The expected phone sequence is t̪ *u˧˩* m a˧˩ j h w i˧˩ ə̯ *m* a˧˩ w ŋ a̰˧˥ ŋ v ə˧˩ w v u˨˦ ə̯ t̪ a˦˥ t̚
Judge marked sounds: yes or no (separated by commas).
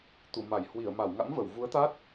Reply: yes, yes